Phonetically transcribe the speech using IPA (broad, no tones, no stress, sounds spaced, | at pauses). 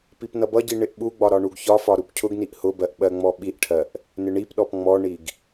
p i p n ʌ b ʌ ɟ i ɳ ɪ ʔ ɓ u ɡ͡b ɒ ɾ ɒ ɳ u ɡ ç ɒ f ɒ ɾ u p cʰ ʊ ɡ n i ʔ h ʊ b ɜ ʔ ɓ ɜ ŋ͡m ɔ ɓ i ʔ ʈʰ ɜ ʔ | n ɪ ɳ i p ɗ ɔ p ŋ͡m ɔ ɳ i ɡ